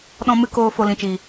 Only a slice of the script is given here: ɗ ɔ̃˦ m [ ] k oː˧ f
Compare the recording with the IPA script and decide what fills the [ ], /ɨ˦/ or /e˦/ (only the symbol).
ɨ˦